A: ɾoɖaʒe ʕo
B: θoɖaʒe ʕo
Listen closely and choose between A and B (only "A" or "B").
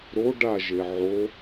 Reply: A